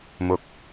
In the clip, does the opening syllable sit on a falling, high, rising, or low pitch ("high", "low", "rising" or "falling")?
low